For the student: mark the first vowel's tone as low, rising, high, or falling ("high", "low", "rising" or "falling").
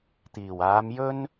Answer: low